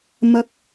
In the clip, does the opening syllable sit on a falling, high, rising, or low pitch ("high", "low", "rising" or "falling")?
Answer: high